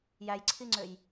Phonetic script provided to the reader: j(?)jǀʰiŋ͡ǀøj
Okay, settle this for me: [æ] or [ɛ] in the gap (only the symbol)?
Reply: æ